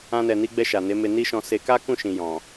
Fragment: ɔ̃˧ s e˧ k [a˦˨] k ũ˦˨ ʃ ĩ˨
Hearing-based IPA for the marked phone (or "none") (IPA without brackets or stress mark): a˦